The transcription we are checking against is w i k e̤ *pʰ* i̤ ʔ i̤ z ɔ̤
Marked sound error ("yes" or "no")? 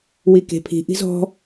no